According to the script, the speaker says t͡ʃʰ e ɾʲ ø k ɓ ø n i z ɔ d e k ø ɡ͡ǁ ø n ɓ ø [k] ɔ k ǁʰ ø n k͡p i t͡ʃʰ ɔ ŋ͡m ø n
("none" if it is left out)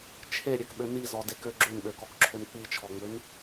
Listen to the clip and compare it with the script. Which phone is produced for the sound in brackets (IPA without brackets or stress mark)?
k